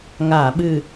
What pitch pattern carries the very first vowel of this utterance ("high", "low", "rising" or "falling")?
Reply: low